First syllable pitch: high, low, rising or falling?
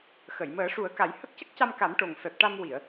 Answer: low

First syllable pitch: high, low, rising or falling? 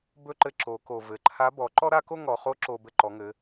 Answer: high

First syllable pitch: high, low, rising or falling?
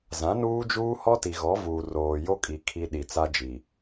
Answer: rising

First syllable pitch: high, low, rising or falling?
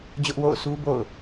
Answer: high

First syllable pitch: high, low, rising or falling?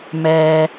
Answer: low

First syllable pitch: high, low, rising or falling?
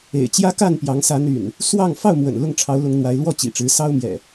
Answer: low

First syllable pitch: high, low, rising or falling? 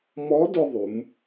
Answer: rising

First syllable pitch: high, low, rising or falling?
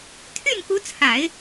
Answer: falling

